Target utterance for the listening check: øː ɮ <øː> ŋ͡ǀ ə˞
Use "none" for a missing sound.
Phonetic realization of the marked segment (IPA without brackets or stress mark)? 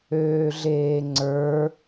eː